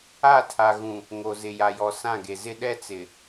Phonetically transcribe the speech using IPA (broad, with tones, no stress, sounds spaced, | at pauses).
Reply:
a˦˨ tʰ a˨ ɣ ũ˨ | ŋ o˨ z ɪ˨ j a˨ j ɔ˨ s ã˦˨ ɡ e˨ z ɪ˦ ɗ ɛ˦ t͡s ɪ˨